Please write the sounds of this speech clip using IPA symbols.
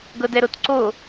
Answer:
ɡɤdɛɾotǀo

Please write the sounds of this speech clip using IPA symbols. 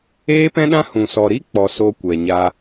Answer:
eː˦pɛ̃˦ɗã˦hũ˨ sɔ˧ ɾi˦k͡pɔ˨ so˧ kʷɛ˨ɲa˧

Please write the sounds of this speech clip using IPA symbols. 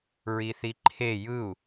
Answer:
ɹiθiǃʰe jɯu̯

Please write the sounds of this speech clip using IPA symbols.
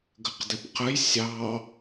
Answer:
ɡəqdɪpqəj sʲɑ

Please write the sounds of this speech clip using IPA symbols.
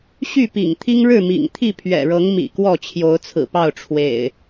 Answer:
ɕy˥˨pḭ˨˩ŋt̪ʰi˦ŋɻɻ̩˥˨ mḭ˨˩ŋt̪ʰi˥˨pʰɥɛ̰˨˩ɻɤ˨˦ŋ mḭ˨˩ kwɔ˥˨t͡ɕʰjo˨˦ʊ̯t͡sʰɹ̩˨˩pɑ˥˨ʊ̯ ʈ͡ʂʰwḛ˨˩ɪ̯

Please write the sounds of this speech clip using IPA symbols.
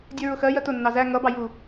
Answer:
dʲɛɹʊxɜjɜ tʊnːɑ zæ ŋʌbɑ ju

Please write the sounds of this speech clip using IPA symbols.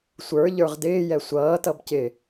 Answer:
sʷə˞ʎə˞ʁ dɪːjɛ sʷʌːtʌb cɪ

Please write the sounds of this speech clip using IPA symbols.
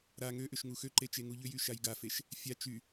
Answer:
ɾa ŋøʔʏʃ ŋuxøǃe t͡ʃeŋuʎʏjy ʃajɡafeʃ | fʲa t͡ʃy

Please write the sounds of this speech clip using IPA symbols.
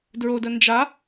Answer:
dɹodə nd͡ʒa

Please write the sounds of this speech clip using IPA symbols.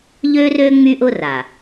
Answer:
ʎø˦rø˦ ŋ͡my˦ʔʊ˦ra˨

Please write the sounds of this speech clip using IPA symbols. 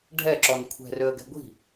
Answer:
ɖʱɛǁɔn kʷʰɛ̤røə̯ɡɛ̤ ɡʷi̤

